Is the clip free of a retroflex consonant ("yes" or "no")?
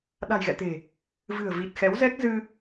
yes